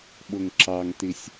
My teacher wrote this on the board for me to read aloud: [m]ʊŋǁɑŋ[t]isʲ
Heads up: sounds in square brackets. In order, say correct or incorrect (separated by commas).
incorrect, correct